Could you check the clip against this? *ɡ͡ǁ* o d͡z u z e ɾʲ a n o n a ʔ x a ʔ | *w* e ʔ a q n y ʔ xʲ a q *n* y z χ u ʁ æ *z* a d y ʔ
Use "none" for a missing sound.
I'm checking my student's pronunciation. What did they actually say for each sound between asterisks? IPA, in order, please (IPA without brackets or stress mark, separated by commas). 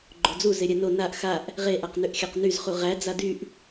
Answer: ɡ͡ǃ, ʁ, n, d͡z